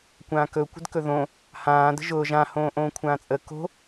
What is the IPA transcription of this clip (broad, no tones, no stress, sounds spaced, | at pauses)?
kʷ ãː k ɵ kʷ ə̤ d k ɵ ð õ | h ãː d ə̤ ʒ ʊː ʒ ã h õː ʔ õː kʷʰ ãː t͡sʼ ə k o̤